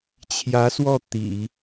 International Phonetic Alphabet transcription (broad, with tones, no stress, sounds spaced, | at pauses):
t͡ɕʰ j ä˧˥ s w ɔ˥˩ t̪ ḭ˨˩˦